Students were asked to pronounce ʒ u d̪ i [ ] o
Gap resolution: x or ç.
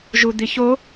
ç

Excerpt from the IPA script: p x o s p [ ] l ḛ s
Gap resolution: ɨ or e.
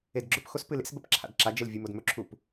ɨ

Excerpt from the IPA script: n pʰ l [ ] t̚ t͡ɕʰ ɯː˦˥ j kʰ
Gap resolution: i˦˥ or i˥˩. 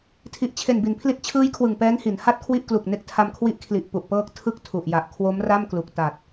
i˦˥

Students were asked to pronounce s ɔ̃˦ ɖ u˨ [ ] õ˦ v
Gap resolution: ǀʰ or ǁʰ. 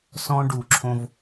ǁʰ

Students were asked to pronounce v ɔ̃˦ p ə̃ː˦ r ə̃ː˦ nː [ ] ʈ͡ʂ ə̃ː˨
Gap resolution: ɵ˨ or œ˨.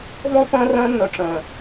ɵ˨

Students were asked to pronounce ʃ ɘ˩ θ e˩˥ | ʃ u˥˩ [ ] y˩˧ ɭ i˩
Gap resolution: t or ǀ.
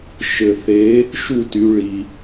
t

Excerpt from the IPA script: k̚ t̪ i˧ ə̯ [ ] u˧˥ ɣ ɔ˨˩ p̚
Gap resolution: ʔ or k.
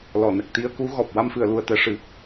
k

